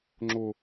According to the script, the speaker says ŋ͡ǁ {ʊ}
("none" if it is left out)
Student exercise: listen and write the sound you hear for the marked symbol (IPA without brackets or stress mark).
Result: ʊ